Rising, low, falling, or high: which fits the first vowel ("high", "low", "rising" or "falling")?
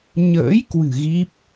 rising